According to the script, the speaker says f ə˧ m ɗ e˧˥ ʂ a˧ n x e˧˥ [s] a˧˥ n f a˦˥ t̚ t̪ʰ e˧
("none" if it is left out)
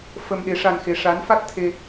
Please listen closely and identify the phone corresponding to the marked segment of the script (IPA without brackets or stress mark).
ʂ